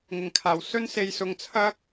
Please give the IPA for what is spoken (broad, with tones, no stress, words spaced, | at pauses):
ŋɪ˨˩ŋkʰaː˨˩w sɵ˥nse˧j sʊ˧ŋt͡sʰɐ˥k̚